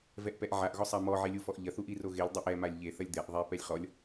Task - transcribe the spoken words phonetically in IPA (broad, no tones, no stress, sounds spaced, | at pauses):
v ɛ ʔ p ɛ ʔ ʕ a ʔ ɣ ɔ sˤ a m ɔ ʕ e lʲ u f ɔ ʔ ʎ ɐ θ u ʔ i r o ɣ e lʲ dˤ i ʔ ɛ m a lʲ ʎ e θ ɐ lʲ d̪ ɛ ʔ ðˤ ɛ p ɛ lʲ χ ɔ lʲ